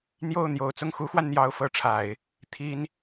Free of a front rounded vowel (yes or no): yes